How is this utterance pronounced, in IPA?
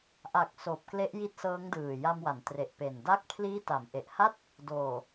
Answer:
ʔa˨˩k̚ soː˨˩p̚kle˦˥ʔji˦˥t̚ sɤː˦˥ŋdɯː˨˩ ja˧mwa˩˦n tre˨˩ʔpe˨˩n da˥˩k̚ pʰliː˦˥ta˩˦mʔe˨˩ʔha˥˩t̚ | doː˨˩

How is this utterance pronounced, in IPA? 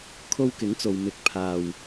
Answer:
kʰo˧wkɪ˨˥ŋt͡so˨w mɪ˧k̚ pʰaː˧w

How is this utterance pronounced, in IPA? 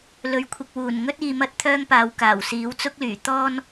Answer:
lɵ˨˥ɥkʷʰɪ˨k̚ wuː˨˩n ŋɵ˥t̚iː˨ mɐ˥t̚t̪ʰœː˥ŋpaː˨w kaː˨˩wsiː˨˥w t͡sʊ˥k̚lyː˨˩t̪ɔː˥n

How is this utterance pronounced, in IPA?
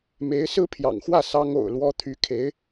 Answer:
me˧˥ɪ̯sɹ̩˥pʰjɑ̰˨˩ŋxwä˥˩ sɑ˥ŋo̰˨˩ʊ̯lwɔ˥ t̪ʰy˧˥ kʰe˧˥ɪ̯

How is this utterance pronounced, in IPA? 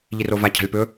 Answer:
ʎirova cʰa̤lʲpɵ

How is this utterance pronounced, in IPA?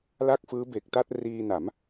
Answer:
la˥˩k̚fɯː˦˥be˨˩k̚ta˥˩t̚ riː˧na˩˦m

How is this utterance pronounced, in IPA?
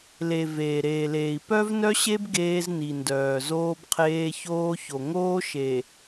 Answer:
le˨ veː˨ɾeː˨leː˨i̯ pœ˦vnœ˦ɕe˦b ɡeː˦zni˨ndœː˨ zoː˦bqʰeː˦ çoː˦ço˨ ŋoː˦ ʃe˨

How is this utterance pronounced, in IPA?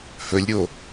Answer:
hɵlʲɾʲo

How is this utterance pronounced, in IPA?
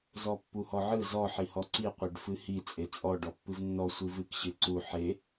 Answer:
zɔpːuhɔʕɯ zɔ ħihɔǀi qʷeɖfɨhi t͡sʼet͡sʼɔ ɖɔpːɨvnːɔ sʷɨvɨk ɕɨǀu ħe

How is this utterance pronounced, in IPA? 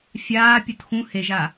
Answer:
fʲaː pʲutxũ heʒa

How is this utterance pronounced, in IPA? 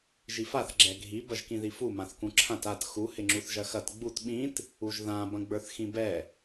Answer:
ʒifaθ ɡ͡ǁɛɡʱi bɐʒkĩðifu mãθkũǁʰãt at xu hɪŋ͡ǁuθʒɐxɐt ɡ͡but ɓĩt | uʒðã bɐ̃ɡ͡bə˞θxĩbɛ

